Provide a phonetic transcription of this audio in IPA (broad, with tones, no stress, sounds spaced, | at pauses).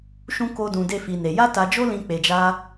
ʃ ũ˧ k o˧ d ũ˨ d e˧ f i˨ n e˨ j a˧ t a˨ d͡ʒ o˧ l ĩ˨ k͡p e˨ d͡ʒ a˧